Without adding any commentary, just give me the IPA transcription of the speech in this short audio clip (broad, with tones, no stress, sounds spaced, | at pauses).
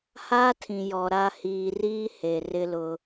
h aː˦ tʰ ĩ˨ j ɔ˨ ɾ a˨ h iː˨ r iː˦ h e˨ r ɪ˦ l ʊ˦